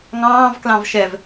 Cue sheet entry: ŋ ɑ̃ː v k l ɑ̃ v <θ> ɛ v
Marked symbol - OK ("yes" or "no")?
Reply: no